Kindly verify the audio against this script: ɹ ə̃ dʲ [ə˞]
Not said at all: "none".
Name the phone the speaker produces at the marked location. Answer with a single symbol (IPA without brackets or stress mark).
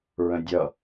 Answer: ʌ